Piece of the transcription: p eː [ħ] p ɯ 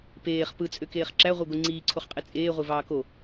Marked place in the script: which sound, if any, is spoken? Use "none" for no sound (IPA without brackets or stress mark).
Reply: χ